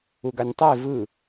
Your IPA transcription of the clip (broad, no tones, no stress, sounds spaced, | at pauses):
u ɡ a nʲ tˤ e v ɯ